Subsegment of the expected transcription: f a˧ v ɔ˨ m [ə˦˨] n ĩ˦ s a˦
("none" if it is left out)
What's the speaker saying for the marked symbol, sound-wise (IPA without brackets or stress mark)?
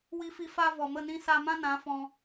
ə˦˨